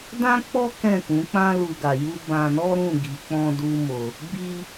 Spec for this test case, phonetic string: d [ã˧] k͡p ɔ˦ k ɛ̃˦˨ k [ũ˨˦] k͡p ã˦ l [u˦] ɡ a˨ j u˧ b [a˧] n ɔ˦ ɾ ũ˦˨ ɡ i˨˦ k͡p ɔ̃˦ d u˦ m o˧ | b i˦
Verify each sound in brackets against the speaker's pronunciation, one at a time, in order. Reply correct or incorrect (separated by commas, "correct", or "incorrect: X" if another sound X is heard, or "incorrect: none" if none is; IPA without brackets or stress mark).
incorrect: ã˦, correct, incorrect: u˧, incorrect: ã˧